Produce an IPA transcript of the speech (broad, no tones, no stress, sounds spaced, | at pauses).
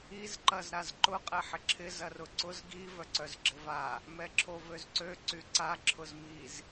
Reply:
i z ǃ ɐ z ɾ a z ǃ ʊ qʼ ɛ ħ ɪ ǁʰ ɪ z ɐ r ʊ ǀ ʊ z ɡ i v œ ǀ œ z ɡ͡ǁ ɪ v a | m ɛ ǁʰ o v ø z ǀ ø ǀ y ǀ a ǁʰ ʊ z m i z